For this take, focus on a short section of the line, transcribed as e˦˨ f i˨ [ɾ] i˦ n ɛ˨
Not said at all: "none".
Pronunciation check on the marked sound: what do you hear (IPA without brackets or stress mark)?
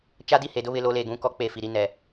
ɾ